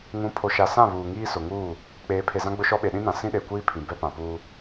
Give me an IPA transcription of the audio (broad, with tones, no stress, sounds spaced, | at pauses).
ŋ ũ˨˦ pʰ o˨ ʃ a˨ s ã˦˨ β uː˨ ŋ iː˦ s ʊ˨ ŋ uː˦˨ | k͡p eː˨˦ pʰ e˨ z ã˦ ɡ͡b ʊ˦ ʃ ɔ˦ ɓ e˨ ɗ ĩ˦ n ã˨ s ĩ˦ ɗ e˨ kʷ iː˦ pʰ ĩ˨ b ɛ˦ p ã˨ p uː˦